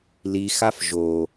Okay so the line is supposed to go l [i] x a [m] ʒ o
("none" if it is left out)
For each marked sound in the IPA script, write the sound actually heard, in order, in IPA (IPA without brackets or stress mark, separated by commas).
i, f